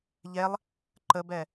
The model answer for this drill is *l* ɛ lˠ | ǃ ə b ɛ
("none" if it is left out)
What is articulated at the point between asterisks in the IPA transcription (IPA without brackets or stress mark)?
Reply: ʎ